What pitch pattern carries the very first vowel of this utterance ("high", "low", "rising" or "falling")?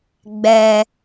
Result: low